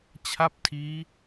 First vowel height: low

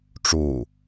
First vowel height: high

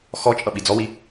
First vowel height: mid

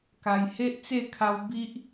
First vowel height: low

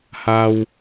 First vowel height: low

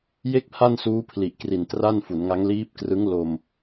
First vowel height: mid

